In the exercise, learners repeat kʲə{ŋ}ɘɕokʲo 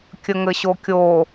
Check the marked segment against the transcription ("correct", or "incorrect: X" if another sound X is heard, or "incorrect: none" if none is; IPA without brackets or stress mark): correct